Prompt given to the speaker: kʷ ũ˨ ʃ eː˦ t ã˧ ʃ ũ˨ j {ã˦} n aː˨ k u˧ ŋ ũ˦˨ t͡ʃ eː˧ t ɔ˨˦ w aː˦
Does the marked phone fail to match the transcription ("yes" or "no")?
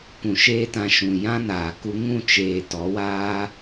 no